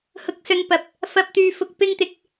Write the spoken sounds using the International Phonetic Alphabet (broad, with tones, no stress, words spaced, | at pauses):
hʊ˨k̚sɵ˨npɐ˨˥p̚ | fɐ˨p̚t̪yː˨ fʊ˨k̚ pɪ˧ŋt̪ɪ˨k̚